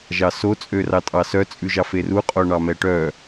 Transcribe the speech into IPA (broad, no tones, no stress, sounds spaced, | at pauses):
ʒ ɑ s o t͡sʼ ø r ɑ tʼ ɑ s œ t͡sʼ ʉ ʒ ɑ f e r u qʼ o ɳ ɑ m ɛ ʈ œ